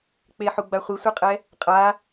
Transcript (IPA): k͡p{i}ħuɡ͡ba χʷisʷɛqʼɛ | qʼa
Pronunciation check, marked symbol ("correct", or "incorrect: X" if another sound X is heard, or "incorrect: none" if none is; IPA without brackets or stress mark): incorrect: e